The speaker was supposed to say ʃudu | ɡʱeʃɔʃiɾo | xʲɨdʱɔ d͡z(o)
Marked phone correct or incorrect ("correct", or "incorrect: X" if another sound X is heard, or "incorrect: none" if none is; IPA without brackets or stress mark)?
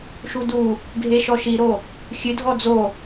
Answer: correct